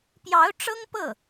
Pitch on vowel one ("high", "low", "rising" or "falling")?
rising